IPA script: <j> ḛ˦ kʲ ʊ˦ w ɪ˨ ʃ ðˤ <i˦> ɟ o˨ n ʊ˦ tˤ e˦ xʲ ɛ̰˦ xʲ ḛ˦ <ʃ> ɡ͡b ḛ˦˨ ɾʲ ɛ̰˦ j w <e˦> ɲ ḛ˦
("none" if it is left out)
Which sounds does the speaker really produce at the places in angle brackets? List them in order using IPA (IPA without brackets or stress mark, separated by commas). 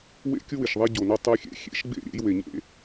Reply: w, e˦, ʃ, e˨